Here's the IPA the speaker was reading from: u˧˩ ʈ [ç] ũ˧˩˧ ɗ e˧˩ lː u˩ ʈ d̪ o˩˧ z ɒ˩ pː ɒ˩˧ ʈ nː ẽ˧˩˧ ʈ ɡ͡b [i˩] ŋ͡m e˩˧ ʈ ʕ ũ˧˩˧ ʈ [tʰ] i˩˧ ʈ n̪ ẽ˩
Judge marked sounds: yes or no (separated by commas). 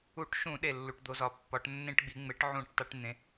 no, no, no